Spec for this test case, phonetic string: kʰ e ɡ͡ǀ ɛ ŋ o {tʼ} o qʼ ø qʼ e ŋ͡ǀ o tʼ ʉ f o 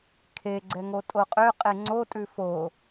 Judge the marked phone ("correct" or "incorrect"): correct